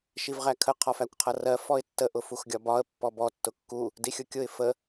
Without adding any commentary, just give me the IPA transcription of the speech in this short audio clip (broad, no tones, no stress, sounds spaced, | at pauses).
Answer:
ʃ i v ʁ æ kʰ ə qʰ ɒ f æ kʷ qʰ ʌ r ɜ f ɔ ɪ̯ tː ə ʔ ʊ f u x ɡʲ ɒ b ɒ ə̯ pː ɔ b ɔ tː ʊ kː u | d i xʲ ʊ kʲ ʊ ɪ̯ f ə